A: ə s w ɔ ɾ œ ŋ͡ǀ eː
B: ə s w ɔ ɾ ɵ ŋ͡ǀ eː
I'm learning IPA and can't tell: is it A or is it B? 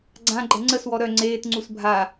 A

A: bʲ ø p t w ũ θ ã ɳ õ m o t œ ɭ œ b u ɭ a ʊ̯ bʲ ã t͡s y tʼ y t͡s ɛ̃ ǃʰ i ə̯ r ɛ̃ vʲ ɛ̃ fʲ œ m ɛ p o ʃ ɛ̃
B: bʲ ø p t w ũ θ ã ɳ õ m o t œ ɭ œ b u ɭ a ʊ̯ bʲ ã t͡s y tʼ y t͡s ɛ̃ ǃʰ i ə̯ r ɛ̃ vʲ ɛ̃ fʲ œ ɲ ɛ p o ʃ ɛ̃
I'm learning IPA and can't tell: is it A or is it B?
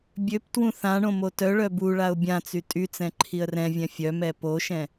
A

